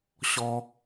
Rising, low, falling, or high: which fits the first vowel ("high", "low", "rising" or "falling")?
high